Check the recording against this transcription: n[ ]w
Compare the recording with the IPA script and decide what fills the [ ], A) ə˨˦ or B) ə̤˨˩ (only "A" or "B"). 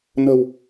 B